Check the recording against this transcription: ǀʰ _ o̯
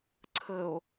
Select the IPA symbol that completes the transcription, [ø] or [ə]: ə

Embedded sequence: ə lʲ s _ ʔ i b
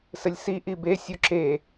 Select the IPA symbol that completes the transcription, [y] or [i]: i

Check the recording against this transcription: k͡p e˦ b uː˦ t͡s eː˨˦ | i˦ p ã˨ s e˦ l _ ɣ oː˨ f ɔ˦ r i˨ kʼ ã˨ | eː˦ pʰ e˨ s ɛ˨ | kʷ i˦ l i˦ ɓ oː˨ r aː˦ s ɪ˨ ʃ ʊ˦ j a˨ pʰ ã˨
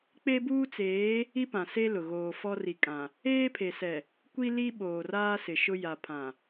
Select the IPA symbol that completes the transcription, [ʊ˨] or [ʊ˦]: ʊ˨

